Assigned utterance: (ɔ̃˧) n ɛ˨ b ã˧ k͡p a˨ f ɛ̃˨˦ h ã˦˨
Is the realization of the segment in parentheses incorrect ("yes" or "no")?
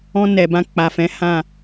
no